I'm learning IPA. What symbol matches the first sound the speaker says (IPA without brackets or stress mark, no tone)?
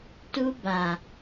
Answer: t